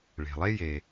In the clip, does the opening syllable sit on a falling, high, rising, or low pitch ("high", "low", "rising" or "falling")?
low